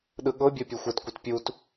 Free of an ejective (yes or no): yes